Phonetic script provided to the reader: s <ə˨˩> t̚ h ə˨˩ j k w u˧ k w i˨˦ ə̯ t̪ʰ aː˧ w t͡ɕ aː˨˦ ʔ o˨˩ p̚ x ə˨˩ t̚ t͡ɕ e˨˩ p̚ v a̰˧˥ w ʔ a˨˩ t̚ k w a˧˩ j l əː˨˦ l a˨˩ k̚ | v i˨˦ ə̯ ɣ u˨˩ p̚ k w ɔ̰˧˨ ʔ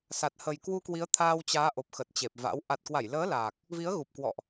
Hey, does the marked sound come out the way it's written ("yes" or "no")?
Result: no